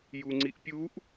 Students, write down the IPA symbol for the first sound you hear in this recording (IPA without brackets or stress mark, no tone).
j